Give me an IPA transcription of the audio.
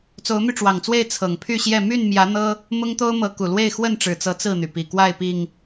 t͡s o˨˦ ʊ̯ m y˧ ʈ͡ʂ w ɑ˨˩ ŋ t͡s w e˥˨ ɪ̯ t͡sʰ ɤ˨˩ ŋ pʰ y˥˨ ɕ j ɛ˥˨ m y˥˨ n m j ä˨˦ n̪ ɤ˦ | m ʊ˦ ŋ t̪ o˦ ʊ̯ m ɤ˨˦ k u˨˩ l w e˥˨ ɪ̯ x w ə˥˨ n ʈ͡ʂ ɻ̩˨˩ t͡s ɤ˨˦ t͡s ɹ̩˥˨ n̪ y˩ p i˨˩ k w a˥˨ ɪ̯ p i˨˩ ŋ

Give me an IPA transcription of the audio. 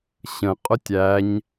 ɕ ə̃ qʼ ʊ tʲ æ ɲ

